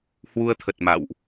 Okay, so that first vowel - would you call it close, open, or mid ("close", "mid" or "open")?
close